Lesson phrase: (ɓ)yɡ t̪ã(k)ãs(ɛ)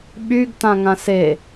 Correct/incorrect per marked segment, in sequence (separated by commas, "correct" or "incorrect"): correct, incorrect, incorrect